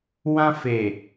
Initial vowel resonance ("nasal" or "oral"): nasal